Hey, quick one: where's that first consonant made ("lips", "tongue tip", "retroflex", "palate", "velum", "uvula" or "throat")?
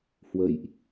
throat